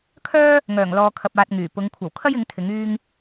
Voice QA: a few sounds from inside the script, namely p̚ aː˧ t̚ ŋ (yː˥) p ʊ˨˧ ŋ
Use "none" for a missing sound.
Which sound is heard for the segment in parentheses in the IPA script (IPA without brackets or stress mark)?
yː˨˩